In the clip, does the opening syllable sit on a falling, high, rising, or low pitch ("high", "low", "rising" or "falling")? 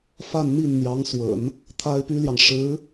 falling